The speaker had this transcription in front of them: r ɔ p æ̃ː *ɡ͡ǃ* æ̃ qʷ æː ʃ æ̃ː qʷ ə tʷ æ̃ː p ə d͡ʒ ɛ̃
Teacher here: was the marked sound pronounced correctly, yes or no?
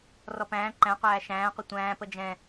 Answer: no